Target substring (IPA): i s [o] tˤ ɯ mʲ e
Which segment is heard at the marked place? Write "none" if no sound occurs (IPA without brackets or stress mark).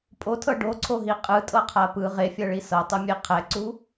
ɤ